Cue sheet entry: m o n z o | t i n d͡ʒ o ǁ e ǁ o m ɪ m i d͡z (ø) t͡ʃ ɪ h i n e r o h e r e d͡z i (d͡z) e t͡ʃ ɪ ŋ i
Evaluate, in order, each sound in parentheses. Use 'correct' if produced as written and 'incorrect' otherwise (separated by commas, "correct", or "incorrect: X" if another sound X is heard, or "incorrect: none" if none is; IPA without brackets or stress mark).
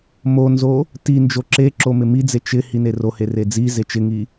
incorrect: e, incorrect: z